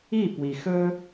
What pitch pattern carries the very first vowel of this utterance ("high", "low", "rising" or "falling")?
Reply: falling